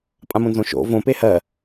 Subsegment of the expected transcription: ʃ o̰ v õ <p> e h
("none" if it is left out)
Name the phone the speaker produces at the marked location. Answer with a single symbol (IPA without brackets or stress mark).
p